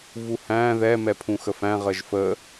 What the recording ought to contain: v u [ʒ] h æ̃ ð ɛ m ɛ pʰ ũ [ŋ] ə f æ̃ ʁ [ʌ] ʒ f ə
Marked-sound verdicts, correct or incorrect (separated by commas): incorrect, incorrect, incorrect